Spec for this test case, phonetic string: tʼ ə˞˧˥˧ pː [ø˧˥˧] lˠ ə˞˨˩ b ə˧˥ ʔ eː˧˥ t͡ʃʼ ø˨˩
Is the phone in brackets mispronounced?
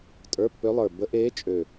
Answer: yes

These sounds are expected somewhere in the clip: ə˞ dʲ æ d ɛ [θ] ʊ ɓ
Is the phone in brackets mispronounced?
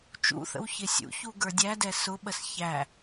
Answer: yes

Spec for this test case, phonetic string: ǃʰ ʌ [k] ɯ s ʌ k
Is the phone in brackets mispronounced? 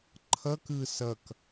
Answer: no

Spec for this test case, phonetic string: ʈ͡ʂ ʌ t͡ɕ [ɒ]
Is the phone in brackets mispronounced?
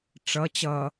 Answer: yes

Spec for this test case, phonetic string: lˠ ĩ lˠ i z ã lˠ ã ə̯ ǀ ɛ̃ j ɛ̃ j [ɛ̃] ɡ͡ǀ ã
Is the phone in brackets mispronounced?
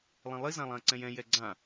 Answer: yes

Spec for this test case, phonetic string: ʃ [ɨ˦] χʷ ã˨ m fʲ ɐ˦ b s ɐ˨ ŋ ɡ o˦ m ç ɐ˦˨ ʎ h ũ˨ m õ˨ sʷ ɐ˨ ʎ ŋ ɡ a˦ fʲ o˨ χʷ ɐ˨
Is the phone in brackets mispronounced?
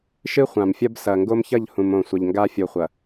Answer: no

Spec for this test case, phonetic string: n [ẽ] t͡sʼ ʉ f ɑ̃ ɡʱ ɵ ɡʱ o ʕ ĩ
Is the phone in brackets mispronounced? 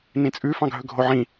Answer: yes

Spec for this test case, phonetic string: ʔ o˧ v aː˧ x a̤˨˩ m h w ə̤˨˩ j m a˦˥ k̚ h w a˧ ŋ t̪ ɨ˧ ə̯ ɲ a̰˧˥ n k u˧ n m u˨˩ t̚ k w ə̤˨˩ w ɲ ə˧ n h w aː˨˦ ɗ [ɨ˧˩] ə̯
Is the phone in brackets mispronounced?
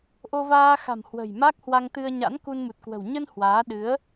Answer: yes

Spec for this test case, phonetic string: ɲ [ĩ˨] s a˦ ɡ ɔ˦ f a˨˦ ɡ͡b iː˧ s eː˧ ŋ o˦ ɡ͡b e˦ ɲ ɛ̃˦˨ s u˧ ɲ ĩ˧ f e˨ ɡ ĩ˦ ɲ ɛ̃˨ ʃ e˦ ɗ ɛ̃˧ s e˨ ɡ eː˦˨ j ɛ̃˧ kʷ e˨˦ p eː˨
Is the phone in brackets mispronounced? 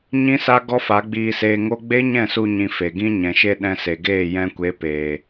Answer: yes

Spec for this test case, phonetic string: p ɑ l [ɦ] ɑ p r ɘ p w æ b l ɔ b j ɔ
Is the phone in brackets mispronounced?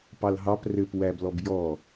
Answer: no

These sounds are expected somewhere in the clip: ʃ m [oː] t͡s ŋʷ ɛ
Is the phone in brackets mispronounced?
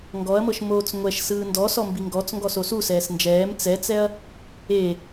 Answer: no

